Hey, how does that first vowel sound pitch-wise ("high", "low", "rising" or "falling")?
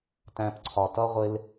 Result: low